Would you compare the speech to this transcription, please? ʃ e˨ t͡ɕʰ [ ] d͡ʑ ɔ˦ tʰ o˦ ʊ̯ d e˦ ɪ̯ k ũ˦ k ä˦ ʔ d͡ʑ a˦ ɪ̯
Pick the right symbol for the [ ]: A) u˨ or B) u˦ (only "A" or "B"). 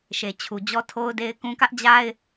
A